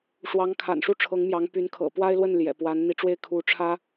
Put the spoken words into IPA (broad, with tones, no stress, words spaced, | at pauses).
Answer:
ʂwɑ˧˥ŋkʰa̰˨˩n ʂu˥˩ʈ͡ʂʰɤ˧˥ŋ mjɑ˧˥ŋpy˧˥n kʰɤ̰˨˩pwa˥ɪ̯lwə˥˩n ljɛ̰˨˩pwa˧˥nn̪i˧˥ ʈ͡ʂwe˥˩ɪ̯ kʰu˧˥ʈ͡ʂʰä˥